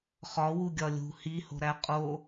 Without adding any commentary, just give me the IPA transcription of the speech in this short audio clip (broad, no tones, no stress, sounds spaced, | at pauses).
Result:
χ ɒ w u ɡʲ ɒ lʲ ṳ h i h o̤ ɾ æ qʼ o